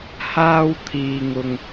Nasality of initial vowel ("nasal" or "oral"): oral